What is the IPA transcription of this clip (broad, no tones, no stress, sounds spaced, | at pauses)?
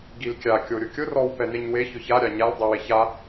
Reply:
ɡ i l kʲ a kʲ o ɾʲ ʊ kʲ ʊ r ɔ w p ɛ n e ɲ w e ç ʊ ç a ɾʲ a ɲ a l dˤ i w e ç a